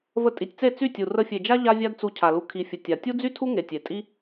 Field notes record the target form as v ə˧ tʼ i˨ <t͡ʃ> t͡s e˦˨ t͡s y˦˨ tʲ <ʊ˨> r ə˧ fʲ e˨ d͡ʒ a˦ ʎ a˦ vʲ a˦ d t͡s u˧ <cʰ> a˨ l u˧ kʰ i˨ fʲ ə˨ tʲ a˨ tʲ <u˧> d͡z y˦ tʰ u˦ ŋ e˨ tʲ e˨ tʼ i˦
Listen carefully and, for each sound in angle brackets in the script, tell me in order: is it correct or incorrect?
incorrect, incorrect, correct, incorrect

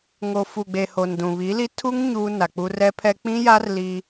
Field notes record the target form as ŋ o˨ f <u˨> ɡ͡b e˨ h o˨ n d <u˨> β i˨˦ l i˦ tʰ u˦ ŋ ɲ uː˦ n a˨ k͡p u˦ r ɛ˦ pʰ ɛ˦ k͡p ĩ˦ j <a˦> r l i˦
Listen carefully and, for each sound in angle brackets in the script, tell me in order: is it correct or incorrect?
correct, incorrect, correct

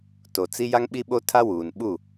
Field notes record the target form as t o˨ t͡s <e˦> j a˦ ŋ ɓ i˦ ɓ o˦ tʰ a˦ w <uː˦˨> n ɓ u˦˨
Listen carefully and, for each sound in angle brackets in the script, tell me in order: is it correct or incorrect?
incorrect, incorrect

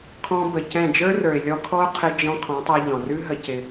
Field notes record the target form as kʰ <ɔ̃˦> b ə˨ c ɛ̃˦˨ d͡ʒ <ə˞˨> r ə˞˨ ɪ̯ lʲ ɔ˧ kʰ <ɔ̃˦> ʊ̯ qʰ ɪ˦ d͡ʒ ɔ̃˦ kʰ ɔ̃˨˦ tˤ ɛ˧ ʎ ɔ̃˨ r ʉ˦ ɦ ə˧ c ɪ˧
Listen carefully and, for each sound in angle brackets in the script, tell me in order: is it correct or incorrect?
incorrect, incorrect, incorrect

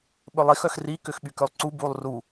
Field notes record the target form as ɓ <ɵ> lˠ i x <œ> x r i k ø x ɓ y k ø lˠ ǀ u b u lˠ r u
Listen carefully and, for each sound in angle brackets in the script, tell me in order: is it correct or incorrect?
correct, correct

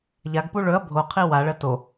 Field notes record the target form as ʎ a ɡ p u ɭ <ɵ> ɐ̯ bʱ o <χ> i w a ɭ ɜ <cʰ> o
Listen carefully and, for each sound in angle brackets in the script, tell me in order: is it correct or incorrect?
correct, incorrect, incorrect

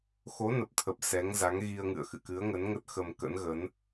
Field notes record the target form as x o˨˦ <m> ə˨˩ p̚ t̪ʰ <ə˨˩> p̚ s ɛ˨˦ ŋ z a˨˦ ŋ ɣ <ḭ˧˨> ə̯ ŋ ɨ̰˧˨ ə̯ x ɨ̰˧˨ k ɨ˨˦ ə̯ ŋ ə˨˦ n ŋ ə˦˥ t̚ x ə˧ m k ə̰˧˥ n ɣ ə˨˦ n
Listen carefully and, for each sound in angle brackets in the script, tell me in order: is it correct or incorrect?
incorrect, correct, incorrect

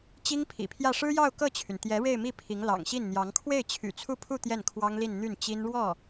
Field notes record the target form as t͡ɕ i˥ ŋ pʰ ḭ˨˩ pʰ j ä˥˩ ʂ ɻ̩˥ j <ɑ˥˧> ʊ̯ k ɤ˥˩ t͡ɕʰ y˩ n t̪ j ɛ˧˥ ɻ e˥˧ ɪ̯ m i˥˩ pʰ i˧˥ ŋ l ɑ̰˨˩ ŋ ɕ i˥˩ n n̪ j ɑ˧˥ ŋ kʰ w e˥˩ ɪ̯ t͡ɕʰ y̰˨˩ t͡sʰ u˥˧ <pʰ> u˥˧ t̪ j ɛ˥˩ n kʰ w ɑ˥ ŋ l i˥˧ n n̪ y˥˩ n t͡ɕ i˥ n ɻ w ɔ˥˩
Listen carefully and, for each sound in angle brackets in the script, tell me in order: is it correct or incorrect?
correct, correct

